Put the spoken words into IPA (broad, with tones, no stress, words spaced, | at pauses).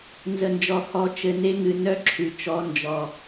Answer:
nzə˨nd͡ʒɔ˨hɔ˨˦ t͡ʃɘ˨ne˧ ŋɨ˨nœ˦ǁʰʉ˨ t͡ʃɔ˨˦nd͡ʒɔ˨